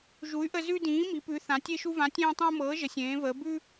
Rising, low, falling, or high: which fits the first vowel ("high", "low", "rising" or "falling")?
rising